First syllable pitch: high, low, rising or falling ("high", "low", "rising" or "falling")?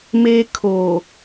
high